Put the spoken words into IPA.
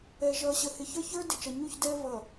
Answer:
ɛ˨ ʒ ʌː˨ ɕ ə˨ h ɪ˨ ç ə˞˦ ç ə˞˦ d ɪ˨ t͡ʃ ʌ˨ ɲ u˦˨ ç d ɛː˦ v ʌ˨

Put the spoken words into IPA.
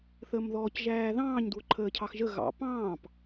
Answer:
θ əː m ð ɔː c ʒ æː ð ɑ̃ː ɲ d w ʊ ǃʰ əː cʰ ɑ x ʒ ə ɣ ɑ̰ p ɑ̃ː p

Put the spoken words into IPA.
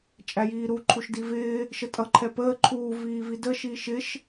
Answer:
t͡ʃʼ æ j iː ɾ u ǃʰ u ʃ d i v ɪː | ʃ ə tʼ ʌ ǃʰ ɛ p əː ǃʰ uː v iː v i d ə ʃ iː ʃ ɪ ʃ

